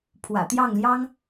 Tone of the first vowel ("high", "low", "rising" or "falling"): low